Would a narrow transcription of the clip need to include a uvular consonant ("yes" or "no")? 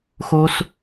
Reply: no